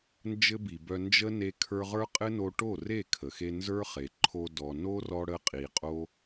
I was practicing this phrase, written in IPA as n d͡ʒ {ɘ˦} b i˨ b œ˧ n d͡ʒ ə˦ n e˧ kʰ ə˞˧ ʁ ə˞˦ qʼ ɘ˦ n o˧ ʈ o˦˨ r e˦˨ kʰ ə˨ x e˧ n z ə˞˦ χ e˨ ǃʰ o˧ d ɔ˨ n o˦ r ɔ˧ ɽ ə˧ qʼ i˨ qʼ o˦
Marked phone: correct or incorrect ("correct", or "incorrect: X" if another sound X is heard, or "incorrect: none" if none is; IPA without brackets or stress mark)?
correct